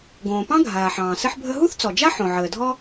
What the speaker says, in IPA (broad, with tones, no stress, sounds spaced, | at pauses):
ɡ õː˩ p ɑ̃˥ ɡʱ aː˩ ħ ɑ̃ː˩ s ɘ˥ ħ bʱ ə˥ ɦ u˥ θ t͡s ɔ˩ d͡ʒ a˥ ħ õ˩ ʕ əː˩ dʱ ɔ˥